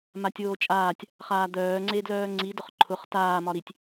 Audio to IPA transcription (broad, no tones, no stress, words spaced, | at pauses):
matʲoːt͡ʃʼaːtʲ | χaːd̪œː ŋ͡ǀedlœːŋ͡ǀi dʊχǃʰʊχ taː mɒɾitʲ